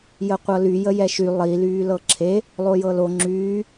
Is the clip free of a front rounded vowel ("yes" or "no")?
no